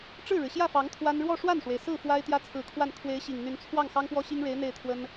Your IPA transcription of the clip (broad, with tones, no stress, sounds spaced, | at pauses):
ʈ͡ʂ ɻ̩˥˩ ɻ ɻ̩˩ ɕ j ä˥˩ f ɑ˧˥ ŋ t̪ʰ w a˥ n ɻ w ɔ˥˧ ʂ w a˥˩ n ʂ w e˩ ɪ̯ s ɹ̩˥˩ f w a˥ ɪ̯ t̪ j ä˥ t͡sʰ ɹ̩˧˥ kʰ w a˥˩ n kʰ w e˧˥ ɪ̯ ɕ i˨˩ ŋ n̪ y˧˥ n t͡sʰ w ɑ˥˩ ŋ x ɑ˥ ŋ p w ɔ˥ ɕ i˥ ŋ ɻ e˧˥ ɪ̯ n̪ e˥˩ ɪ̯ t̪ʰ w ə˥ n